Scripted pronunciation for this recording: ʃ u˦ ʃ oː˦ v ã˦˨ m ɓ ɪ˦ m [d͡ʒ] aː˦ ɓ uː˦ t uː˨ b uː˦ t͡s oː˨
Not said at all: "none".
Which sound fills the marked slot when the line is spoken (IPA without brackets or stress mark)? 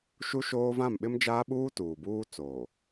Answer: d͡ʒ